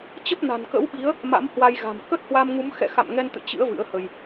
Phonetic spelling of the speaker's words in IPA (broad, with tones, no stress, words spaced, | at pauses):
t͡ɕə˦˥p̚na̤˨˩n kə̰˧˥wɓi˨˦ə̯ | ma̰˧˥mhwa˧jɣa̤˨˩m kə˦˥t̚hwa˧mŋu˨˦m xɛ̰˧˨xa̰˧˨mŋɛ˧nt̪ɨ̰˧˨ t͡ɕɨ̰˧˥ə̯ vɨ̰˧˥ə̯hə˧j